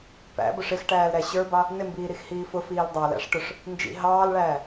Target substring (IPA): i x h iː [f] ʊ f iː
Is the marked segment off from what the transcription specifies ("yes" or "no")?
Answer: no